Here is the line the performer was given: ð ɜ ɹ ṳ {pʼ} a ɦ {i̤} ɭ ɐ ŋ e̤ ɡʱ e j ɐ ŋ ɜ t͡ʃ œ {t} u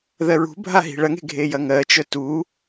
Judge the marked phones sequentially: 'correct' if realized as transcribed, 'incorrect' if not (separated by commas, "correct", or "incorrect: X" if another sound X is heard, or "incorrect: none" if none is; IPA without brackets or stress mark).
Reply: incorrect: bʱ, correct, correct